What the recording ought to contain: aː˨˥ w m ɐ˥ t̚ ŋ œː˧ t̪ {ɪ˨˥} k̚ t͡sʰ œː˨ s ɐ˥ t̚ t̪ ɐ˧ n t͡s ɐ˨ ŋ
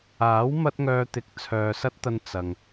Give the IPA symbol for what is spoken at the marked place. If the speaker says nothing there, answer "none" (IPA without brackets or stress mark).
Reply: ɪ˨˥